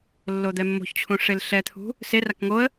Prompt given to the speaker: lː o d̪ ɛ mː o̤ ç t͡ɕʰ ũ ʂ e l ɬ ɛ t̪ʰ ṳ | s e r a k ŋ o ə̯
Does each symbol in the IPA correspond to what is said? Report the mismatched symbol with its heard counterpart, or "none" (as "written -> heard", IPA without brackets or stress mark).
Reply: none